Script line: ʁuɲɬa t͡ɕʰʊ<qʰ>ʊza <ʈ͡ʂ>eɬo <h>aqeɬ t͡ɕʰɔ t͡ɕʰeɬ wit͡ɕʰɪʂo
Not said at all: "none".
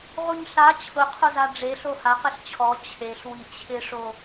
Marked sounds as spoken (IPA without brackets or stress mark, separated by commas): qʰ, ɖ͡ʐ, h